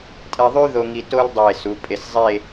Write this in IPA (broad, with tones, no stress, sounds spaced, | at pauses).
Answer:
tʼ ɛ˧ ðˤ y˥ ð o˧ ŋ i˧ t o˥ l dˤ e˧˩ s u˩˧ pʼ e˧˩ s zˤ e˥˧